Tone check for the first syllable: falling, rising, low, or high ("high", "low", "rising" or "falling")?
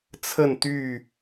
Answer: falling